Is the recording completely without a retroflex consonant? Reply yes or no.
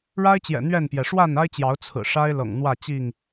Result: no